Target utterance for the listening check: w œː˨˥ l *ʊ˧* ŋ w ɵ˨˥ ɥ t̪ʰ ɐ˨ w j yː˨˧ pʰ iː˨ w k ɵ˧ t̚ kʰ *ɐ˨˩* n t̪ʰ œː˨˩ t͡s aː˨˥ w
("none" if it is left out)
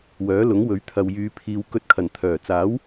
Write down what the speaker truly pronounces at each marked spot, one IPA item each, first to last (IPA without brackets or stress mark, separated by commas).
ʊ˨˥, ɐ˨˩